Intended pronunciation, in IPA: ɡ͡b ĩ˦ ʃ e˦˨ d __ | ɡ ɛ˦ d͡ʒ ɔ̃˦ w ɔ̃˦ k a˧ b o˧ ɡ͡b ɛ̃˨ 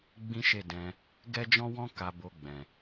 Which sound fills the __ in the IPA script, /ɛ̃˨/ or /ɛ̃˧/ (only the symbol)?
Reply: ɛ̃˧